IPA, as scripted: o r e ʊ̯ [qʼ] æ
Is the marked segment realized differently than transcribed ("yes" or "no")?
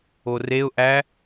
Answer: yes